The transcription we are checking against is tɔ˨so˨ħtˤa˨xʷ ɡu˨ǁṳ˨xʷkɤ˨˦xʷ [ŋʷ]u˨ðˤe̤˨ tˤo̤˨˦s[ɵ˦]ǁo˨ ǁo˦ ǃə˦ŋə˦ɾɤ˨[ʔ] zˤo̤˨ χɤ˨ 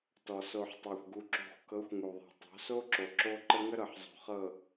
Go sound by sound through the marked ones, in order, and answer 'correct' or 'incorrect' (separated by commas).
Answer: incorrect, incorrect, incorrect